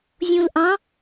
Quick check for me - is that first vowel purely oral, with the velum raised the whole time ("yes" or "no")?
no